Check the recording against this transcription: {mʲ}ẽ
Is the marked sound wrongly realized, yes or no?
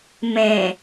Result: yes